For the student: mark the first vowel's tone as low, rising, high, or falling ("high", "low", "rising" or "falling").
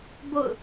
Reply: falling